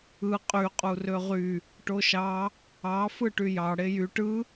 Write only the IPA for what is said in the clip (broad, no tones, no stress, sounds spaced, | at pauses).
ɯ qʼ y qʼ u r ø ʁ y | ʈ o ʃ ɑ | ɑ f ɯ ʈ y j ɑ ɽ e j y ʈ ɯ